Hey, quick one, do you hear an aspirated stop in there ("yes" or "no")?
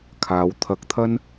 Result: yes